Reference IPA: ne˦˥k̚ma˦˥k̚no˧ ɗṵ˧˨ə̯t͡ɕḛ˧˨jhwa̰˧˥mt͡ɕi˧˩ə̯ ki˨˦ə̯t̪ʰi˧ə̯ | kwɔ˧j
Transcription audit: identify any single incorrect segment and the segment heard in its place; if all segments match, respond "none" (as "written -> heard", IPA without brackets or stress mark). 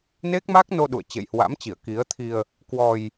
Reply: none